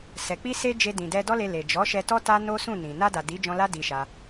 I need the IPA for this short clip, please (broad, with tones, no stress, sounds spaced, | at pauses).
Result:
s ɛ˨ k͡p i˧ s e˧ d͡ʒ e˧ d ĩ˨ d ɛ˧ d ɔ˦ l e˧ l e˨ d͡ʒ ɔ˨˦ ʃ ɛ˧ t ɔ˦ t a˦ n o˦ s ũ˦˨ n ĩ˨ n a˧ d a˨ d i˨˦ d͡ʒ ɔ̃˧ l a˦ d i˧ ʃ a˧